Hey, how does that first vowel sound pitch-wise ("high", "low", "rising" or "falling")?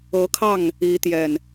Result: rising